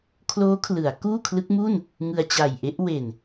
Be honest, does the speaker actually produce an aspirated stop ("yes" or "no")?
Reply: yes